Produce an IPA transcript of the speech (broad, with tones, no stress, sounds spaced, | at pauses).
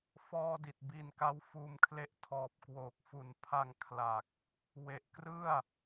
f ɔː˧ d i˨˩ t̚ b iː˧ n k a˦˥ w f uː˧ m kʰ l e˦˥ ʔ tʰ ɔː˨˩ p̚ k w oː˨˩ k̚ f u˨˩ n pʰ a˧ ŋ kʰ l a˨˩ k̚ | w e˨˩ ʔ k r ɯ˥˩ a̯